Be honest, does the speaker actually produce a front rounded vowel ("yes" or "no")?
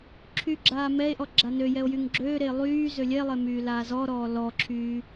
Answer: yes